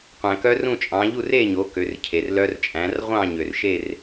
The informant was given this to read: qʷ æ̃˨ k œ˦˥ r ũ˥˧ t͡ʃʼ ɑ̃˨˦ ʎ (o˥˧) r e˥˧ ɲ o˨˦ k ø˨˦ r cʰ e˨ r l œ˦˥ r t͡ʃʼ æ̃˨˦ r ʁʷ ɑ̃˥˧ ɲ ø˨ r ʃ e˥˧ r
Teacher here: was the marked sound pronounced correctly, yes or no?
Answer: no